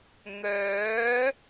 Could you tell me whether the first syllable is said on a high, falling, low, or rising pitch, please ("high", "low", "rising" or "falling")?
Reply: rising